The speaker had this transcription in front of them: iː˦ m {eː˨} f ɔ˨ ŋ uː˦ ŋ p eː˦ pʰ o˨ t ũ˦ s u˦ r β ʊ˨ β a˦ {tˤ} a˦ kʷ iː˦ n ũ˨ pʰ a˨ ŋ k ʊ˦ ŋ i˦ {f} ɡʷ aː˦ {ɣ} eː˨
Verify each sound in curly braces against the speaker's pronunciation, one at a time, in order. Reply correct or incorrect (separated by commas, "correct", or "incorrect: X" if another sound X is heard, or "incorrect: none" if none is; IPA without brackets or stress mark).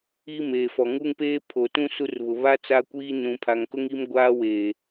correct, incorrect: t͡s, incorrect: m, incorrect: w